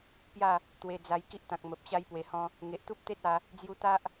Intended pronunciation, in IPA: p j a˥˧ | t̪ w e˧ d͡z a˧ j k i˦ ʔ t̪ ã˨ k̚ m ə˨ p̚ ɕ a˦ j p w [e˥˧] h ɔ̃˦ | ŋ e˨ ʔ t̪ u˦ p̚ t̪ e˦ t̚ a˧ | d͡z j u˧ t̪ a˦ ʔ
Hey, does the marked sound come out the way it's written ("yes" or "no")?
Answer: no